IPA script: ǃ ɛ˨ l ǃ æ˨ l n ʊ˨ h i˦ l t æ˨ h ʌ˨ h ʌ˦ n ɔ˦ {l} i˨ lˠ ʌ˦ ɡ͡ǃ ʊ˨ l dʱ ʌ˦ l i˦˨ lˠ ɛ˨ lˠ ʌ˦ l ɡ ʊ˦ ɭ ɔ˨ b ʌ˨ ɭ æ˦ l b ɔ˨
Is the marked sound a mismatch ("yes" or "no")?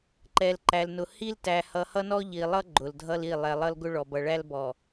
yes